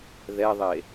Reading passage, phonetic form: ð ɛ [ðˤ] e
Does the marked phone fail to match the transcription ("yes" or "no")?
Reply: no